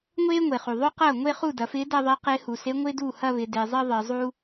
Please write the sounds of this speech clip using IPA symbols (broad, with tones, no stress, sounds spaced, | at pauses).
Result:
ŋʷ eː˥ ŋʷ e˩ χ u˩ ðˤ ø˥ q ɐː˥˩ ŋʷ e˥˧ χ u˥˩ d ɐ˩˧ f ɪː˧˥ d ɐ˥˧ ðˤ e˧˥ q ɪː˧˥ h u˩ s e˧˥ ŋʷ ɪː˥ d uː˥˩ h ɐ˥˧ β ɪ˩˧ d e˩˧ zˤ ɪː˥ ðˤ ɪː˩˧ zˤ uː˥